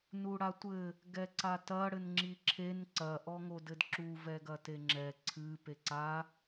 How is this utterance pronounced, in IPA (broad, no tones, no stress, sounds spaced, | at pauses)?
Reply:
n u ɽ a tʷ ɘ | ɡ ɛ ǀ a t ɐ ɽ ɘ n ŋ͡ǁ i ǁʰ e n ǀ ɐ ʔ ɔ ŋ o d ɘ d ǁ u v ɛ ɡ ɐ t e ŋ͡ǁ ɛ ǀʰ ɨ p e ǀ a